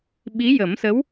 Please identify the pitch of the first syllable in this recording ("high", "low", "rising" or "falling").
rising